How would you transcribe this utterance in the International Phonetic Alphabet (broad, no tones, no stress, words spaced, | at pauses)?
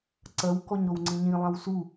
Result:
ǀɐw kɔɲɾowŋ͡ǀĩɲĩ lˠãwsu